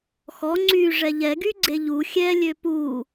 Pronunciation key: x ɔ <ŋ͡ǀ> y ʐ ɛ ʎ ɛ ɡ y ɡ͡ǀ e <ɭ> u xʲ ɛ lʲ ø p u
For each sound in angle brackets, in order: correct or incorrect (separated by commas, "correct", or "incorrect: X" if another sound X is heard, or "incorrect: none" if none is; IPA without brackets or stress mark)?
correct, incorrect: ʎ